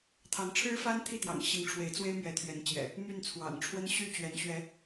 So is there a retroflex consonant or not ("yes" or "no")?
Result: yes